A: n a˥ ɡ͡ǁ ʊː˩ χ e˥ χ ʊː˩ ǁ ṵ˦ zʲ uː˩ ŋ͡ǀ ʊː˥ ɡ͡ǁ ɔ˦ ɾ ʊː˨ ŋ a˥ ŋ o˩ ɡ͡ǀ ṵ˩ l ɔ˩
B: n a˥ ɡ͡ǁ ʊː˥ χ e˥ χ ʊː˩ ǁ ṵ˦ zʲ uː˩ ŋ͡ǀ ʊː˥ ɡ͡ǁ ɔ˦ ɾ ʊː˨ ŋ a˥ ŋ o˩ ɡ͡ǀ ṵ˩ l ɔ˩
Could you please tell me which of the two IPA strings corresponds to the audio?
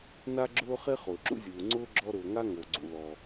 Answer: B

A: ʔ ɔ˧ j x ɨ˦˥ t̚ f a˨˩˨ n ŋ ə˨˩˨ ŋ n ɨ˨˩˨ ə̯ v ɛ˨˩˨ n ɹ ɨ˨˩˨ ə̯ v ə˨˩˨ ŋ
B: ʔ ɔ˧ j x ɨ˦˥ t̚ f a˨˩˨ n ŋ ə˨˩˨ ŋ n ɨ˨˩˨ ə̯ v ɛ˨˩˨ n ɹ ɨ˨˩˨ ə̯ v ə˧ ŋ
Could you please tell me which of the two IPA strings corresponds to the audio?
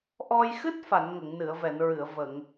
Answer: A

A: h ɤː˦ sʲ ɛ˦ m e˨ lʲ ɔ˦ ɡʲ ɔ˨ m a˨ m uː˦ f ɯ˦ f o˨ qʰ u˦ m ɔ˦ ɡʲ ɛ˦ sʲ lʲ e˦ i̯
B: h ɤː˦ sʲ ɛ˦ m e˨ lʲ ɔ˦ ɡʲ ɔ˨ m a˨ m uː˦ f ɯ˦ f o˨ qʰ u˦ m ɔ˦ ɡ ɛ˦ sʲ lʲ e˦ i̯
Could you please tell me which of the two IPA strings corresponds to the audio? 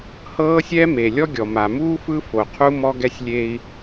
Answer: B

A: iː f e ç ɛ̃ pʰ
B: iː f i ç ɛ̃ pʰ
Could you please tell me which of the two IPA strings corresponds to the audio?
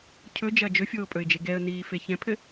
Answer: A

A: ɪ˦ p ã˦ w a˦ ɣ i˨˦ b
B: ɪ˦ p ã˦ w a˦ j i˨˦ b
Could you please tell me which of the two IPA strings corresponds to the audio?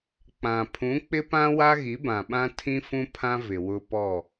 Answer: A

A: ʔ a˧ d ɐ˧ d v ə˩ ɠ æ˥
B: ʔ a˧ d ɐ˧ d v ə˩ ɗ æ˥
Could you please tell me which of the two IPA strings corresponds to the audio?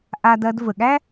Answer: A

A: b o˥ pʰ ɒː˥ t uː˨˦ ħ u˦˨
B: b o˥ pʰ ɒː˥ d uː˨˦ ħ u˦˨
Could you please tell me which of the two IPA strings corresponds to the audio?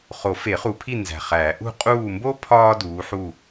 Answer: B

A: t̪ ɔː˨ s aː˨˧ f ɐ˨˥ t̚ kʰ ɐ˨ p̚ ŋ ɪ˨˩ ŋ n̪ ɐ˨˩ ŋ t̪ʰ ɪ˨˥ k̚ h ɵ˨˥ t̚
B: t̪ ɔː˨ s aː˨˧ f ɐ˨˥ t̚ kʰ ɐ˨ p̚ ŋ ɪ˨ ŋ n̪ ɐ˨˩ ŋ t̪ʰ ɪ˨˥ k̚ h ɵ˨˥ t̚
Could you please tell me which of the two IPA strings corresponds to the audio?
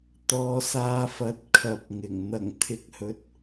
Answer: A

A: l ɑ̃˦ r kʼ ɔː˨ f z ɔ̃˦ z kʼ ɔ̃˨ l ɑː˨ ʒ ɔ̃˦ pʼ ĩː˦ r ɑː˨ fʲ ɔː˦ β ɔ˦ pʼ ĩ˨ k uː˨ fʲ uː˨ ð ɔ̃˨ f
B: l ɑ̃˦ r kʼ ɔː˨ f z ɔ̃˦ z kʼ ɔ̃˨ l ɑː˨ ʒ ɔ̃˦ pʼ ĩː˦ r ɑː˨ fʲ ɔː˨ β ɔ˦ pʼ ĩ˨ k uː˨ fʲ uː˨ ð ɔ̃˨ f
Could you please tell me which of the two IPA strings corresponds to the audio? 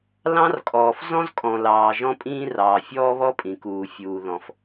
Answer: A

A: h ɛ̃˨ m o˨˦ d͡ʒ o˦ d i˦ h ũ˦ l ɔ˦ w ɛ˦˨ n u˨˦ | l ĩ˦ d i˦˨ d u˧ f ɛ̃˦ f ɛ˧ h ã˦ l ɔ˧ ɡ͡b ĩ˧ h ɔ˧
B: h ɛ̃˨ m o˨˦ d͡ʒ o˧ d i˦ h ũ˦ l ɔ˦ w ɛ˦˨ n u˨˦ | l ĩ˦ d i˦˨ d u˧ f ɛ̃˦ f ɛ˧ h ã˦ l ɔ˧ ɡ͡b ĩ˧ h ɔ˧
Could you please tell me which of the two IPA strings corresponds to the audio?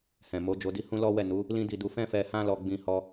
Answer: B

